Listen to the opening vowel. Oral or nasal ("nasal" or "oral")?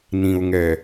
nasal